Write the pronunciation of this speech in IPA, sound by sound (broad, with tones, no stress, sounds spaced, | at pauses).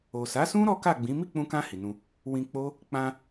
o˨ s a˨˦ s ũ˦ ɾ ɔ˦ k a˦˨ ɡ͡b ĩ˨˦ m i˦˨ k͡p ũ˧ k ã˧ h i˨ n ũ˧ | w ĩ˧ k͡p o˦ | k͡p ã˧